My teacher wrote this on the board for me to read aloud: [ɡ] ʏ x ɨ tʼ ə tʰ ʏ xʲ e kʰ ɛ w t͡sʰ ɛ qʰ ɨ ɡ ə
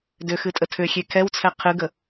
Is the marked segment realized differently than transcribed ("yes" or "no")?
yes